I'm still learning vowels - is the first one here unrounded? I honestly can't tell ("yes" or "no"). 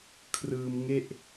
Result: yes